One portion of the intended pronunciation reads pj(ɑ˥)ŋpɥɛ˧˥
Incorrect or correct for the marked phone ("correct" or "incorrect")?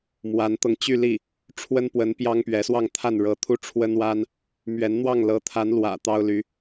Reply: correct